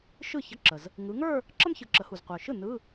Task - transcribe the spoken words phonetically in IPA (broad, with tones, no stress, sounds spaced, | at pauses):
ʃ ɯ˥˩ ç ə˧˥˧ ǁ ə˩ z | ŋ ɯ˩˧ ŋ ə˞˥˧ | ǁ ə˥ m ç ɯ˩˧ ǁ ə˩˧ h u˩ z qʷ ə˞˩ ʃ ɯ˥˩ n ɯ˧˥˧